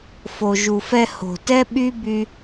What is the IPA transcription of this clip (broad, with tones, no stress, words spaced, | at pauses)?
fo˨ʒu˨fɛ˧ ho̤˨tɛ˦ ɓy˦by˧